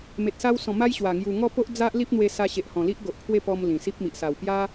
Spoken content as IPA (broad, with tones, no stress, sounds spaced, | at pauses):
m e˨ t̚ s a˧ w s ɔ̃˨˩ m a˦ j ɕ w a˨˩ ŋ j u˨˩ ŋ ɔ˥˧ p o˦ ʔ d͡z a˦ ʔ l i˦ p̚ n̪ w e˧ s a˧ ɕ e˨ ʔ h ɔ̃˨˩ l i˦ ʔ ɡ o˨ ʔ pʰ w e˥˧ p ɔ˧ m l ĩ˨˩ s i˦ p̚ m i˨ ʔ s a˨˩ w p j a˦